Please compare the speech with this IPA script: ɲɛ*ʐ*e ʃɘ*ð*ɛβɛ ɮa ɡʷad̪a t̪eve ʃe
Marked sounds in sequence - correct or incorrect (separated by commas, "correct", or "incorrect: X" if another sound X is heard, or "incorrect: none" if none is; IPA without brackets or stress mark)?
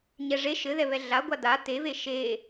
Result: correct, correct